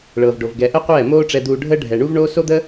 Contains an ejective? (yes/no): no